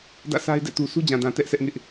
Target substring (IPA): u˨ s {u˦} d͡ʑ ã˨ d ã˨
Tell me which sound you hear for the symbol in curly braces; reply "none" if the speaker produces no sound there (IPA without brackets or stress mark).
u˦